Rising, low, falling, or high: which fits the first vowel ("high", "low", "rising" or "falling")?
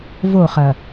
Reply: falling